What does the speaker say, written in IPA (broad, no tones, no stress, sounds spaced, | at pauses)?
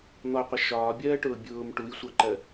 n̪ ɔ qʷ ə ʃ ɒː bʲ ɜː ʈ ʊː bʲ ʊː m ʈ u j sʷ ɑ ǃ ɜ